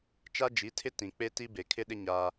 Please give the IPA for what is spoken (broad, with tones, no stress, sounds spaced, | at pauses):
t͡ʃ a˦ d͡ʒ i˨˦ tʰ ɪ˦ t ĩ˨ k͡p e˦ t i˦ b e˨ kʰ ɪ˦ ɗ ɪ˦ ɲ a˦